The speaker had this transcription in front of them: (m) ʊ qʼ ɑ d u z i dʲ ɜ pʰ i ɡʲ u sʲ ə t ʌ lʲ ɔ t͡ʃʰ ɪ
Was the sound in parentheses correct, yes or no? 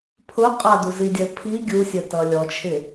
no